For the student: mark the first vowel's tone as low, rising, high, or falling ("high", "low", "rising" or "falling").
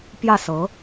falling